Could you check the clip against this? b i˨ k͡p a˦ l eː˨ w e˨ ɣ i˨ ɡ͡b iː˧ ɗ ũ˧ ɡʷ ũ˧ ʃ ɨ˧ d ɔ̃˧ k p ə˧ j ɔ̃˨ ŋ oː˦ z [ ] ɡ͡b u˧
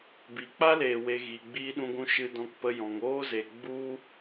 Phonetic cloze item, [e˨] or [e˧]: e˨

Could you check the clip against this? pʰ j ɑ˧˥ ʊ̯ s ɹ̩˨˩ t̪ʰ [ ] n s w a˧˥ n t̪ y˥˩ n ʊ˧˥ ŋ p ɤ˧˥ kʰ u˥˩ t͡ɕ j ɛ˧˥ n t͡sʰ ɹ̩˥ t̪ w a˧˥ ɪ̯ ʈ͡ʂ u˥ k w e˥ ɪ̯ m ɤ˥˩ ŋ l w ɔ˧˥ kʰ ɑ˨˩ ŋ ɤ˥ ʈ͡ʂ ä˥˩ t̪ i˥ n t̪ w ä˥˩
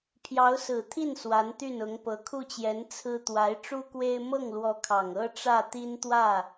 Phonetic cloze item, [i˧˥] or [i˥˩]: i˥˩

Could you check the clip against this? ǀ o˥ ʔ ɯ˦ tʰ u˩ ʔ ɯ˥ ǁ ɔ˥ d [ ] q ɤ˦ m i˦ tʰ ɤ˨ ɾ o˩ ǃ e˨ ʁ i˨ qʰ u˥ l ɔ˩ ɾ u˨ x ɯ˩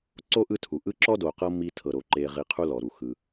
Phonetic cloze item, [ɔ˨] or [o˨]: o˨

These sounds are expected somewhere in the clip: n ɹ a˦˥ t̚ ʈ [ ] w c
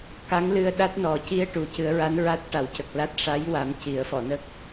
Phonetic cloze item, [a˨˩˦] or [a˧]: a˨˩˦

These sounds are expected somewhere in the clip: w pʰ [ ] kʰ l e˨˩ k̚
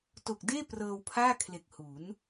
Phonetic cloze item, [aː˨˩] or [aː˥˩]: aː˥˩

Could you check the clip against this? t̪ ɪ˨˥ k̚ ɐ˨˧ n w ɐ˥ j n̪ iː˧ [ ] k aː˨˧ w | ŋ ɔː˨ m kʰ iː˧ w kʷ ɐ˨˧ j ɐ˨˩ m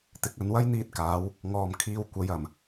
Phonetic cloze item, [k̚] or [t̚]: t̚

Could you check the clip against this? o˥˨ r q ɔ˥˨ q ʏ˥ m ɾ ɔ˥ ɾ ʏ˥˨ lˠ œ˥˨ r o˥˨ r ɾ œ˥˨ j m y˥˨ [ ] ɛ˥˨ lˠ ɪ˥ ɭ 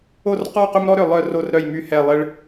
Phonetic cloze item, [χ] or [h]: h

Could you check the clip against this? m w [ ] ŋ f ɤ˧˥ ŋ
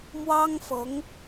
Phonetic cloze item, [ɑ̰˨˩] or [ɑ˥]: ɑ˥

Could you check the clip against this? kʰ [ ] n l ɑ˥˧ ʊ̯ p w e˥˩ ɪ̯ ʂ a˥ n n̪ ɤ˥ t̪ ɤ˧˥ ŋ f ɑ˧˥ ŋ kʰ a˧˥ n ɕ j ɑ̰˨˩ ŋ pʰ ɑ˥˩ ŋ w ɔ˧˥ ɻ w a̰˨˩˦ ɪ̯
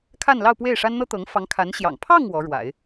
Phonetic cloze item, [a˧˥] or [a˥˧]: a˥˧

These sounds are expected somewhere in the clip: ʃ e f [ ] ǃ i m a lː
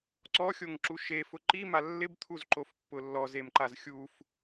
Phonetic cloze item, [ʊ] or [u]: ʊ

